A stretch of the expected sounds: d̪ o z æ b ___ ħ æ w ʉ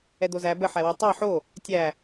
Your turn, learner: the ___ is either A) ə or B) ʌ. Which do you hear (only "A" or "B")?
A